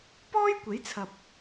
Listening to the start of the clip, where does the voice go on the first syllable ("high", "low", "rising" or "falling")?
high